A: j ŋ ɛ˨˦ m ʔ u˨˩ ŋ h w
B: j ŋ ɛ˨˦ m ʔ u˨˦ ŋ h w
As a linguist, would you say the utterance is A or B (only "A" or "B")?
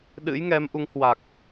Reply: B